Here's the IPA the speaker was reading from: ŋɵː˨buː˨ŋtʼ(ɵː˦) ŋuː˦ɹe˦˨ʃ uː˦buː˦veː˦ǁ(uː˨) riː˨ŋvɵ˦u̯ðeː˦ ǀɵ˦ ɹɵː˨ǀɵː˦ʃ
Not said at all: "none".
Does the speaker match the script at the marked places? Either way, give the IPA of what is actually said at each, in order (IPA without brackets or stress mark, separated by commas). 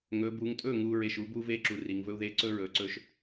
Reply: ɵː˦˨, u˨